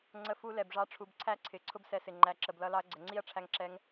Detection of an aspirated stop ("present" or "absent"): present